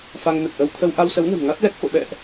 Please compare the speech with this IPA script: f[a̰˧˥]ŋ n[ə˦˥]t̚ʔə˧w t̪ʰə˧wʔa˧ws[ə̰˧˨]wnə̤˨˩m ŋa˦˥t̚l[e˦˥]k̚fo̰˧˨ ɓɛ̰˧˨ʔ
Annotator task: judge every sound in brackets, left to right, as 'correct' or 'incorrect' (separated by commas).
incorrect, incorrect, incorrect, incorrect